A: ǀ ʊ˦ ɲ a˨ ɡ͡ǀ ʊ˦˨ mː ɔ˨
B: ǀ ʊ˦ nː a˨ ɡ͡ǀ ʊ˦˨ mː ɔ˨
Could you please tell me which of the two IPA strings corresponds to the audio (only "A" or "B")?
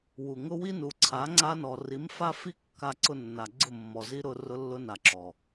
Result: B